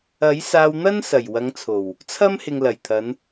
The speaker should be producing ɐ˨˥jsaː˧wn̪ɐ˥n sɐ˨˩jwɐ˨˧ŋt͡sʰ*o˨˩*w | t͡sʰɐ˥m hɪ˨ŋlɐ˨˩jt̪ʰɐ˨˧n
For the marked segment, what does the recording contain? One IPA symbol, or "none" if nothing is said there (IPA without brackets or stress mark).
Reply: o˨˩